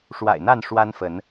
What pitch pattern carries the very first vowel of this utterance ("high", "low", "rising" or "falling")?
low